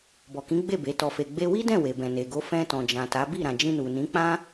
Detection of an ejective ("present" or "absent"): absent